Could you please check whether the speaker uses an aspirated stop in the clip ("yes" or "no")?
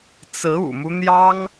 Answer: no